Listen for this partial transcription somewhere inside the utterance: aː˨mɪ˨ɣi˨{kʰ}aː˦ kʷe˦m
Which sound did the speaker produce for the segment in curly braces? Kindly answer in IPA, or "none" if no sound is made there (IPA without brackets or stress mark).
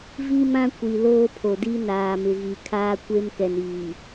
kʰ